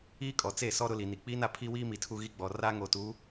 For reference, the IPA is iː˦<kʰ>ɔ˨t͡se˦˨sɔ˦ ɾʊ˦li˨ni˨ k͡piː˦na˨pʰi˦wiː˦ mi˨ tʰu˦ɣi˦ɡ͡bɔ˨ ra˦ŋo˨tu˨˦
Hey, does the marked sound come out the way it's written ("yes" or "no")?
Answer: no